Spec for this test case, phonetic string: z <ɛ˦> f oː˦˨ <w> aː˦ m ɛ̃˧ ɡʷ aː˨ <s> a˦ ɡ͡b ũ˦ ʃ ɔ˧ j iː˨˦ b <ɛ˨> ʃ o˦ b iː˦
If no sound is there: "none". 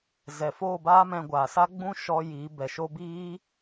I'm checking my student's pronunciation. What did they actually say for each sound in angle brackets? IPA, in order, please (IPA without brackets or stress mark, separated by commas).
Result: ɛ˨, b, s, ɛ˨